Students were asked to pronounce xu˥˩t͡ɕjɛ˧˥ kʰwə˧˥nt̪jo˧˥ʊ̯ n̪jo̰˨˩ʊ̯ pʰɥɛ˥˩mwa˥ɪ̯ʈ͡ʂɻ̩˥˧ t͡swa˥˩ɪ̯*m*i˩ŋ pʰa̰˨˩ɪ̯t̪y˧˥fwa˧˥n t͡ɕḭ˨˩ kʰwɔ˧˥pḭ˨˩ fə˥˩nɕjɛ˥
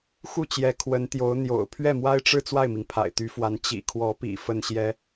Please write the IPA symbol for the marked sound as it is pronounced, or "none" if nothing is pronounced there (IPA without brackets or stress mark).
m